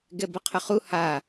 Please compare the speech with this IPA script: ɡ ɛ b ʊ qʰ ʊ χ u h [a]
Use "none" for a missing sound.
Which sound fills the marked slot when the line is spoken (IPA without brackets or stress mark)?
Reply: a